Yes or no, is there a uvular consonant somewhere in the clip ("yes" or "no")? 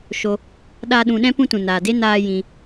no